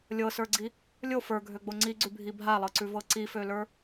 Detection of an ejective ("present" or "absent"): absent